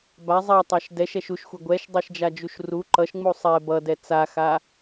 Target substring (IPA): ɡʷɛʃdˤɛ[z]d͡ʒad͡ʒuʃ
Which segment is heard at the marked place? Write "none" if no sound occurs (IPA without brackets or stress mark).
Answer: ʃ